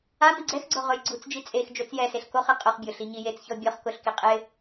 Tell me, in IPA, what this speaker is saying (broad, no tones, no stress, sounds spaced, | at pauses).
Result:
a m i ɡ͡ǀ ɛ x ɡ͡ǀ o ʁ ʊ j ɡ͡ǀ u t͡s d͡ʒ i t͡sʼ e x d͡ʒ o t͡s j ɛ s e ɬ k o χ i qʼ ʊ χ bʲ ʊ ɬ i ɲ i j e t͡s ç ɔ bʲ ɔ χ k ʊ ɬ k i qʼ ɪ